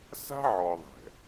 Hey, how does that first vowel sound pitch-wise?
high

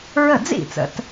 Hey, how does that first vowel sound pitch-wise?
falling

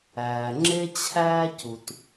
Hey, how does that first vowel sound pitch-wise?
low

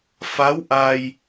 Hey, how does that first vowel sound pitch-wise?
rising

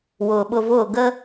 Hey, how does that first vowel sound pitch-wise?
low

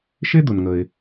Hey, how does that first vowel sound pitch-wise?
high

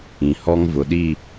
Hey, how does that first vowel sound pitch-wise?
low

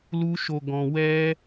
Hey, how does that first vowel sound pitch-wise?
high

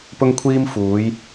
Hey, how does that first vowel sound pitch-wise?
high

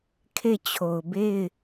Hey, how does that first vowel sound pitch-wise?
falling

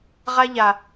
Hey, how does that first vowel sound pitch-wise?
high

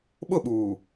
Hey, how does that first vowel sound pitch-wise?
falling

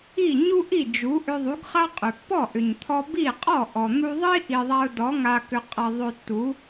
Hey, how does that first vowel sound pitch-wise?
falling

